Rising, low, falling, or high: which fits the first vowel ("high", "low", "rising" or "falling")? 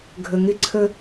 low